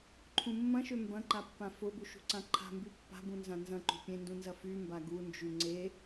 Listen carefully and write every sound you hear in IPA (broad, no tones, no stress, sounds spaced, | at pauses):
ǃʰ ũ mː ɐ̃ ʃ ø m b ɐ̃ ǃ a pː ã f ʊ b u ʃ ṳ ǀ ã ǃʰ a̤ m b y pː a̤ b ũ n z ã n z ɐ̃ ǃ ṳ pʲ ẽ n d ũ n z ɐ f y m b a ɡ u n d͡ʒ y ŋ͡ǀ e